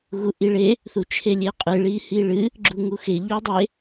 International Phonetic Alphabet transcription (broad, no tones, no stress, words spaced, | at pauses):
ɣuʔiɭe | θut͡ʃʰelʲeqʼɨ ɭihiɭɨ | ɡ͡ǁuŋuxe ʎudˤe